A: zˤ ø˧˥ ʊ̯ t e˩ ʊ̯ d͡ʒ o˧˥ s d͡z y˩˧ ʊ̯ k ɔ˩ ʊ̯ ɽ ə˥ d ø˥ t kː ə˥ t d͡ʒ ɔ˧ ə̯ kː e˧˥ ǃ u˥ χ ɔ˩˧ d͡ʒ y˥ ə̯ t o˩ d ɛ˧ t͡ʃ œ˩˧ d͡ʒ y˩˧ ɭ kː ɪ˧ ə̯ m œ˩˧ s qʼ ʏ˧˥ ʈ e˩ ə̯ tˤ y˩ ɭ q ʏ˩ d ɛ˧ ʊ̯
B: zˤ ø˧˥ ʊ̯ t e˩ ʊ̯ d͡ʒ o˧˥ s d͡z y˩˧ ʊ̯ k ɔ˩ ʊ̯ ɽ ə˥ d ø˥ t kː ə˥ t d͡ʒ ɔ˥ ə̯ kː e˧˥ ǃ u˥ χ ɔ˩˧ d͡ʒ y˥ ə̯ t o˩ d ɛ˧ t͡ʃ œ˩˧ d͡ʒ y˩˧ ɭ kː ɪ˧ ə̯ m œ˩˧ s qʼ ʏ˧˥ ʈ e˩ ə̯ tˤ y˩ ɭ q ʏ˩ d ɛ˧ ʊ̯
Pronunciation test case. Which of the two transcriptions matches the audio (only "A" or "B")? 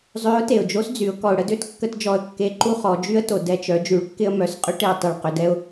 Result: A